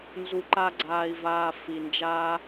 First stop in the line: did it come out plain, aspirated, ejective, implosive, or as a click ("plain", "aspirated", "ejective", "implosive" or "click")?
click